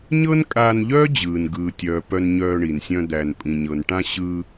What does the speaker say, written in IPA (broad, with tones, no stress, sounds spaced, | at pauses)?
ɲ ɤ˥ n kʼ aː˧ n ʎ œː˥ d͡ʑ ɯː˩ n ɡ ɯː˩ tʲ œː˩ p œ˧ n ɲ œː˧ ɳ i˩ n sʲ œ̃˧ d̪ æː˩ n pʼ ĩ˩ ɲ ɤ˩ n ʈ ã˧ ɕ ɯ˧